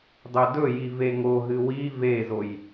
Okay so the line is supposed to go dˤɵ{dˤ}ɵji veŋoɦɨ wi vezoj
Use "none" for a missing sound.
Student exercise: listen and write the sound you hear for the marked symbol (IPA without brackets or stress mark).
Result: d